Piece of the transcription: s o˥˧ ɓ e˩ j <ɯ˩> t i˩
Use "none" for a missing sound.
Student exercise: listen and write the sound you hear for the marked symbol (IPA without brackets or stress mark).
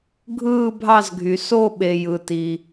ɯ˩